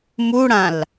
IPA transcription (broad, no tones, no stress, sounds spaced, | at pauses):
m u ɽ ã l